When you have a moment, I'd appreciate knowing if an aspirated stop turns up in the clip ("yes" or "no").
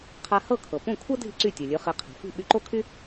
yes